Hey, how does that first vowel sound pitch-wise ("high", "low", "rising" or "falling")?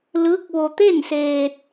rising